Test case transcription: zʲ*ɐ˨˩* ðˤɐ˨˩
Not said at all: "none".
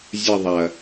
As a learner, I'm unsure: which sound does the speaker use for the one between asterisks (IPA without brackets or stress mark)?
ɐ˦˨